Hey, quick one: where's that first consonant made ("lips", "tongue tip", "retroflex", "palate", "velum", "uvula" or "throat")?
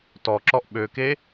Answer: tongue tip